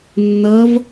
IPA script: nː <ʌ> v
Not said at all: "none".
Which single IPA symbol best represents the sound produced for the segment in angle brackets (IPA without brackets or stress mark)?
ʌ